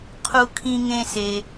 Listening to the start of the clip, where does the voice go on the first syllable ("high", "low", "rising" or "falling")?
low